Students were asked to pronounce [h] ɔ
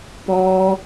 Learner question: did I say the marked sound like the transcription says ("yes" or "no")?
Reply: no